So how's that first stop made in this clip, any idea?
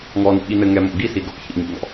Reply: implosive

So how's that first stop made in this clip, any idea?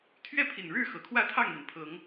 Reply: aspirated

